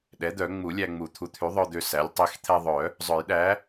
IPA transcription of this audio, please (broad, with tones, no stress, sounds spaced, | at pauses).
ɗ ɛ˩˥ d̪ œ˨˩˦ ŋ͡m u˨˩˦ lʲ æ˧ ŋ͡m u˨˩˦ t̪ʰ u˩˥ t̪ʰ y˩˥ ðˤ œ˧ d̪ ø˧ s æ˩˥ lʲ tˤ i˩˥ x t̪ʰ ɛ˧ ðˤ œ˨˩˦ | zˤ œ˨˩˦ j ɗ æ˩˥